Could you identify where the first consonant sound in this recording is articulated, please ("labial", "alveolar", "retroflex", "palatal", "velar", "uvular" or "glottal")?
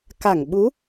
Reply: velar